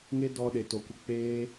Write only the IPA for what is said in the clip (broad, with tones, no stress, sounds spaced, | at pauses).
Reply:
ŋ e˦ d ɔ˧ ɗ e˨ t o˨ kʷ ə˧ k͡p eː˦